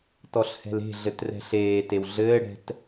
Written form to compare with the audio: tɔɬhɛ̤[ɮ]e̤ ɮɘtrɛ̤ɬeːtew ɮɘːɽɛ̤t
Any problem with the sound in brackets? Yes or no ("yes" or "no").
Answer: yes